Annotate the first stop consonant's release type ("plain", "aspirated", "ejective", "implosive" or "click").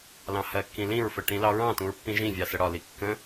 plain